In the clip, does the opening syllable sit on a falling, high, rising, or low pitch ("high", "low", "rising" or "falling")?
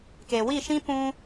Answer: low